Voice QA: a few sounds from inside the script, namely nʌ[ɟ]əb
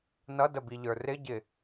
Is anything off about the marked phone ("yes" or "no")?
yes